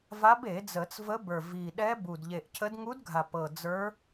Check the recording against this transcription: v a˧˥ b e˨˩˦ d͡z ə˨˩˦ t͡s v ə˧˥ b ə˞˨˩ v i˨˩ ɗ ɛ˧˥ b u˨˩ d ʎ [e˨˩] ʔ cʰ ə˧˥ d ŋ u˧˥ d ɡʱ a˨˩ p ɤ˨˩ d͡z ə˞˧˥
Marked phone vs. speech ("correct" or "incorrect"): correct